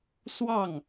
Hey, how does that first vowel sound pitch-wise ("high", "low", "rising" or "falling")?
falling